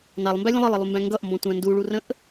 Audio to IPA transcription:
nɑlˠmbælʲə̃ lˠəlˠəlˠumbæ̃ ŋɡʌʔmbɔ̃tʷæ̃ nduɭurə̃ʔ

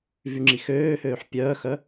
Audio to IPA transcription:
vyŋ͡ǁixøːhøːħ pʲœːxœ

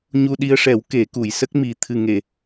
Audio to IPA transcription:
ɲu˧ɗi˧ə̯ʂɛ˨˩˦w ke˨˩˦ku˨˩˨j sə˦˥k̚mi˨˩ t̪ʰɨ˨˩ŋe˨˩˨

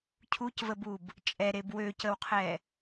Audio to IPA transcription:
cʰucvəbub | t͡ʃʼɛɾeb wøcəwqʰɛ

